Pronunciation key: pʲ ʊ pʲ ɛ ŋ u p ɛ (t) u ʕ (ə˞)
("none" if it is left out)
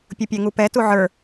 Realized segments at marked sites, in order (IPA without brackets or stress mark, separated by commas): t, ə˞